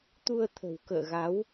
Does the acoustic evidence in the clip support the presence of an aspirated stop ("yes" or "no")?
yes